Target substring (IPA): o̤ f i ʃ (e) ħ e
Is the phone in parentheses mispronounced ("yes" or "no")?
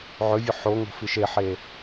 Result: no